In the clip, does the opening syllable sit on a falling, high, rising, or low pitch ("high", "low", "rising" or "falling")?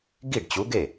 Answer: falling